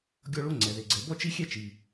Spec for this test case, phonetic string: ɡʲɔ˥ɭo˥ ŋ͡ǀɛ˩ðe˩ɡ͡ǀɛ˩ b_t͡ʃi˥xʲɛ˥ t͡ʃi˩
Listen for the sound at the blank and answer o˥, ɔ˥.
ɔ˥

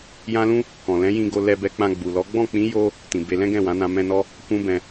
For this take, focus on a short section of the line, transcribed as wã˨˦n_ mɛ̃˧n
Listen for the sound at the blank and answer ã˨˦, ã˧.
ã˧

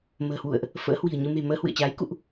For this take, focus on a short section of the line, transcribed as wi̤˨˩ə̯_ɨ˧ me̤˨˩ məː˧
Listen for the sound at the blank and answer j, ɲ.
ɲ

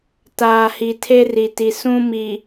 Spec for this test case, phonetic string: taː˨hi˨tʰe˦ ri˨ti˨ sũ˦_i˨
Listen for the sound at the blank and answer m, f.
m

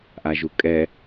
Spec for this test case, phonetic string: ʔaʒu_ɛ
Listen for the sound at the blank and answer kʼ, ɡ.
kʼ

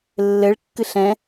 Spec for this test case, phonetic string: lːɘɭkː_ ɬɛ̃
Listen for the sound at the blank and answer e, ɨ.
ɨ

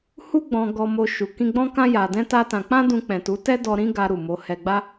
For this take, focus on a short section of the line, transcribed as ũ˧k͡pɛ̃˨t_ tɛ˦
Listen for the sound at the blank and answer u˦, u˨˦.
u˨˦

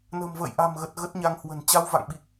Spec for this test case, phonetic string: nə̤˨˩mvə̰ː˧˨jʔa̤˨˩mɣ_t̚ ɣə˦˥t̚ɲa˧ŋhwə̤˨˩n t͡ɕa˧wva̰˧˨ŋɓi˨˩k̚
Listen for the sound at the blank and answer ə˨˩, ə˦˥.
ə˨˩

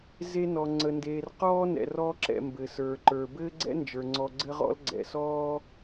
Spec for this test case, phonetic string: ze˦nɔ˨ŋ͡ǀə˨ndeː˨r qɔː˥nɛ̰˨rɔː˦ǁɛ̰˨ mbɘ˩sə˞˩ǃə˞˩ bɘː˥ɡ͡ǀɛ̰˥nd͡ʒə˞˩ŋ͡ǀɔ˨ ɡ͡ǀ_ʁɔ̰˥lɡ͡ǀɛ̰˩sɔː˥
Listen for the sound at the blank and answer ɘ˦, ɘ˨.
ɘ˦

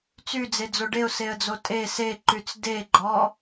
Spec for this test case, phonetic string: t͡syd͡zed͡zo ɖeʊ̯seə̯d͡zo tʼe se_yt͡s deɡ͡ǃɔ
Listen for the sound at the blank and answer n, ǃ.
ǃ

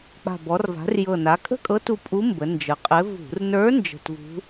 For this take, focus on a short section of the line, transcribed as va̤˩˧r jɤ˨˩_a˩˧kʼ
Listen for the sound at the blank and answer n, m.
n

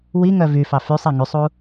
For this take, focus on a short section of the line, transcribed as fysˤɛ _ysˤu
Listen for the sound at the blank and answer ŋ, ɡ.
ŋ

